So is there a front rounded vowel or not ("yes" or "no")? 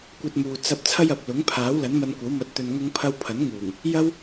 no